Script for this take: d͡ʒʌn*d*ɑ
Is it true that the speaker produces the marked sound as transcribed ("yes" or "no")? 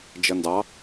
yes